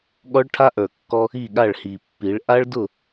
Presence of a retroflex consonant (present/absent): present